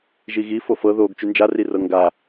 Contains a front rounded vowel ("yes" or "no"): yes